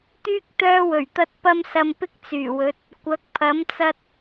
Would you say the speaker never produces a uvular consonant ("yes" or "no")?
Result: yes